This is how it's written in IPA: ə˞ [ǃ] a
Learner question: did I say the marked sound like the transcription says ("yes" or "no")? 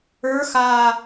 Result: no